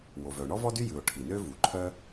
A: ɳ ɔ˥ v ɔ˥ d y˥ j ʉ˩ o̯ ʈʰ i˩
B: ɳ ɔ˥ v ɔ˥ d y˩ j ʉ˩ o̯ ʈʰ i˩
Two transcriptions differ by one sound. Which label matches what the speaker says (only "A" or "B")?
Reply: A